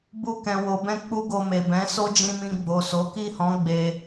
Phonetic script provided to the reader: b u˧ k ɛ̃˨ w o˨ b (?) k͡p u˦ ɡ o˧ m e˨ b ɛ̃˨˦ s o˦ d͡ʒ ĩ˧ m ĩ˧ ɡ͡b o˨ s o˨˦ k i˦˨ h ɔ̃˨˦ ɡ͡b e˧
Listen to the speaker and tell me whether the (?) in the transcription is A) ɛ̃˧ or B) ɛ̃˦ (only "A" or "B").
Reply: A